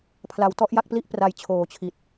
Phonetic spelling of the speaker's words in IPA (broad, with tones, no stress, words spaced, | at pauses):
pʰla˨˩wtɔ˥˩ʔja˥˩k̚pli˥˩ʔ pra˧jt͡ɕʰoː˨˩t͡ɕʰi˨˩t̚